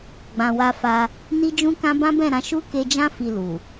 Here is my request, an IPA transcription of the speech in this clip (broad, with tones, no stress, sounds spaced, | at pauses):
ɡ͡b ã˨ w a˧ f a˧ | n i˦ d͡ʒ ũ˦ k ã˦ b ã˦ b ɛ̃˦˨ ɾ ã˨˦ ʃ u˦ k e˧ d͡ʒ ã˦ f i˧ l u˨